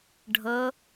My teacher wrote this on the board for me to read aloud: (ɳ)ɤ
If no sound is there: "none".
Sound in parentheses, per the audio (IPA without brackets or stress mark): ɖʱ